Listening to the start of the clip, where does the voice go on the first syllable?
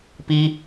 high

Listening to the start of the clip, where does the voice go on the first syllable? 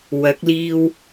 rising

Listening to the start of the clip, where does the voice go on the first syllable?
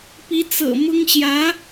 rising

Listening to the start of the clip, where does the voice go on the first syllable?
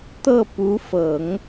falling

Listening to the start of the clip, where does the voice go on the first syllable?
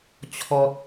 low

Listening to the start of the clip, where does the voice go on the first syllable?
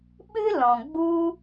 high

